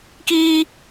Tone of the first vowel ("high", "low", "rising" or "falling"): high